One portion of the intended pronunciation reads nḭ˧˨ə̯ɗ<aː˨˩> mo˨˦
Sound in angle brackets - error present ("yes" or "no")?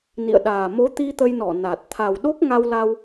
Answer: no